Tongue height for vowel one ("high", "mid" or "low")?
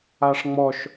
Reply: low